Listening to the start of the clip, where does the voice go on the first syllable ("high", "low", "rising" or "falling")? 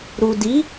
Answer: low